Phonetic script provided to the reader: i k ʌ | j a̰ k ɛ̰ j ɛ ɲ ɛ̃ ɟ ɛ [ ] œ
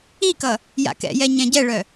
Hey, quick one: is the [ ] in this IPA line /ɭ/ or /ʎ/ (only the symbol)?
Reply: ɭ